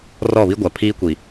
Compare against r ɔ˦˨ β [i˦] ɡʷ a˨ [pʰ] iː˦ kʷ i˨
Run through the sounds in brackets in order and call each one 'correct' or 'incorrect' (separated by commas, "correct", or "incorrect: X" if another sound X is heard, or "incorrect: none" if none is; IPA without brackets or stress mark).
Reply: correct, correct